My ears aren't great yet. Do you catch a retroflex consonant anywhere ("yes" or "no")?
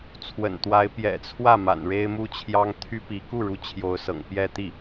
yes